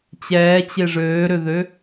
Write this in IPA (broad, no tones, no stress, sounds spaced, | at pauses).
t͡ɕ ɛː t͡ɕ e ʐ øː ɾ ø ð ø